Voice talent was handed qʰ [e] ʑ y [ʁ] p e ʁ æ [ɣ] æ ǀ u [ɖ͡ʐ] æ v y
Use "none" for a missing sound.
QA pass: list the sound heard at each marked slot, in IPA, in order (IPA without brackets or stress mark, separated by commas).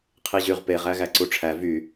i, ʁ, ɣ, ʈ͡ʂʰ